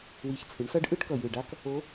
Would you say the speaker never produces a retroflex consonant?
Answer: no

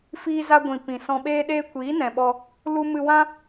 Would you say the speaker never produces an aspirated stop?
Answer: yes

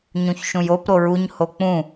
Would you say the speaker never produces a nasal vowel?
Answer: no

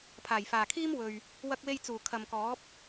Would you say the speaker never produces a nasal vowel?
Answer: yes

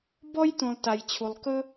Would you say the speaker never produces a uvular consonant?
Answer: yes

